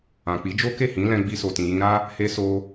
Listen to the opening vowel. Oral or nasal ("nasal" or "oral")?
nasal